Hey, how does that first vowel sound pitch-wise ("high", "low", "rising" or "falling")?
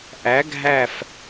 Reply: rising